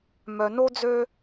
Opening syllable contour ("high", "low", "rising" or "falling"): low